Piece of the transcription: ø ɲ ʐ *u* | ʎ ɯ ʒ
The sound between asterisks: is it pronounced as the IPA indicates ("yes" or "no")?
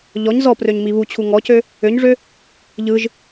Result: no